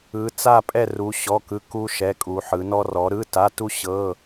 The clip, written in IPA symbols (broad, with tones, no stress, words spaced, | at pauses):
ɯ˨˦t͡sa˥˧ pʼɛ˥˧ru˨˦ ɕɔ˧˥˧kɯ˧˥˧ku˥ ʃɛ˧˥˧kʼu˨˦ ħɯ˨˦nɔ˥ rɔ˨˦ɾɯ˧˥˧ta˧˥˧tu˥ ɕɤ˧˥˧